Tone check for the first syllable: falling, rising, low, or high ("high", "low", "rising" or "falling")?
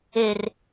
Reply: low